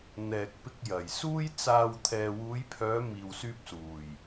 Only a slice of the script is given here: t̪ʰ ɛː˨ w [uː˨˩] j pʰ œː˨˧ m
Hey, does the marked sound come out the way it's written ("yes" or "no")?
no